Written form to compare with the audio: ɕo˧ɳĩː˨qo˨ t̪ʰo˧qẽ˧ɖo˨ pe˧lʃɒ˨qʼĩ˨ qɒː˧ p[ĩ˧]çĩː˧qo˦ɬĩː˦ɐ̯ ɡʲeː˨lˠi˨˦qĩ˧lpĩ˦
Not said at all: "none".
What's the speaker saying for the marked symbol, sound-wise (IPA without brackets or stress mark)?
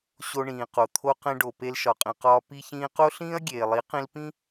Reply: i˧